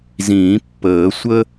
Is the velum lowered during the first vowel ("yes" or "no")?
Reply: yes